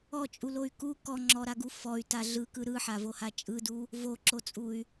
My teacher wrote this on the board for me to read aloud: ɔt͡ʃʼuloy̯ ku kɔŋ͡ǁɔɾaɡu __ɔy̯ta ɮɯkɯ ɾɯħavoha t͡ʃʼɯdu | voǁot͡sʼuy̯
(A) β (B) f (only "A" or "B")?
B